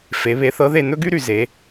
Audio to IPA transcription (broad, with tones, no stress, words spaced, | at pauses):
fe˩˧βe˨˥θɤ˨˥ðe˦˨ n̪ɵ˥ɡy˥ɾy˩ ze˩˧